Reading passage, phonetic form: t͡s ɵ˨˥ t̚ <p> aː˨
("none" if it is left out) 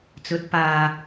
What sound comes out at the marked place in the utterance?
p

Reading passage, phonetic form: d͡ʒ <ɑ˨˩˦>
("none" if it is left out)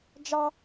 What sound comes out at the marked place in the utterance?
ɑ˥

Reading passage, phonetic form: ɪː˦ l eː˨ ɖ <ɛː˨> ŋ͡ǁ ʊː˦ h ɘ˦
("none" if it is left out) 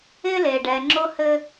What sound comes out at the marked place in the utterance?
ɛː˨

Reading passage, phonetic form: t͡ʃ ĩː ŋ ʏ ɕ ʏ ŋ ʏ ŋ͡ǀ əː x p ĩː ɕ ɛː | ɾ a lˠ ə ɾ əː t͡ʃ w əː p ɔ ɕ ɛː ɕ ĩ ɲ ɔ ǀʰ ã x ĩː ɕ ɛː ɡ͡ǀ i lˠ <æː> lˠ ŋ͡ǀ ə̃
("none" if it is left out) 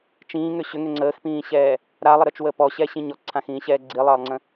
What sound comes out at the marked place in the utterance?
əː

